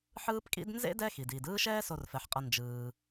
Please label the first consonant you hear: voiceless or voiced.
voiceless